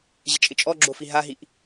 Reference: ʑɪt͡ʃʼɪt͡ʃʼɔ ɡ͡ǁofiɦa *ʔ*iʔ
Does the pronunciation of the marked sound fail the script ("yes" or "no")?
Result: yes